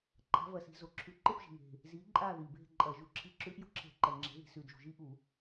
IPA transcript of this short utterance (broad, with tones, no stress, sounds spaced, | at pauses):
ǃʰ a̤˨˥ v ɐ˨˩ s i̤˧˩˧ z o˨˩ ǁʰ ʉ˧˩˧ ǃ ɨ˦˨ p ʒ i̤˨˩ ŋ e̤˨˩ | z i˨˥ ǃʼ a˦˨ ð i˨˩ b e̤˦˨ ǃʼ ɐ˧˩˧ ʒ u˨˩ ǁʰ i˨˥ ǁ ʉ˨˥ ʔ j o̤˦˨ ǁʰ e̤˧˩˧ ǃ ɐ˨˩ ŋ͡ǁ e̤˨˥ ð i̤˧˩˧ s ʉ˨˩ d ʒ ṳ˨˩ ʒ i˦˨ ʔ u˧˩˧